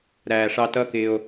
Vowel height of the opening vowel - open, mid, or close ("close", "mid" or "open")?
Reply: open